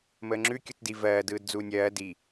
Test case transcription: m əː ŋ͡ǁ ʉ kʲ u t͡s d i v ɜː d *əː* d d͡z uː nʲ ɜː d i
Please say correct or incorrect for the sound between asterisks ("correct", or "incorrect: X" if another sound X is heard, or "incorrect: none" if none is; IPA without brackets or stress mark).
incorrect: ɯː